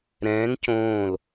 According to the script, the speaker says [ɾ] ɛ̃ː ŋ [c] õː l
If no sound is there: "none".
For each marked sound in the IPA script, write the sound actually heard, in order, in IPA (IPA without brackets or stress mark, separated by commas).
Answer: ɾ, c